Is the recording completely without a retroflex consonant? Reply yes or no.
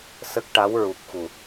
no